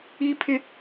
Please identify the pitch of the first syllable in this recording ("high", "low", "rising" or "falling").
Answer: high